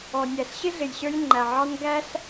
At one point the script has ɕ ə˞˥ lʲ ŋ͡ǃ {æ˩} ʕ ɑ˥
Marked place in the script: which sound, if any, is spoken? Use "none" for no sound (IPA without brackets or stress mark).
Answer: æ˩